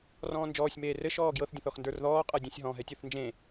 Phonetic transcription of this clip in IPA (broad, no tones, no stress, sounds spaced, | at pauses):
r ɔ̃ː n d͡ʒ ɔː sʲ m eː r ɘ ʃ ɔː ɡ j ɤ θ dʲ ə̃ θ ɔ x n d ə˞ r ð ɔː qʼ ɤ dʲ ɛ̃ sʲ ɦ ɔ̃ ɦ ɛ tʲ ɤ θ n d͡ʒ ẽ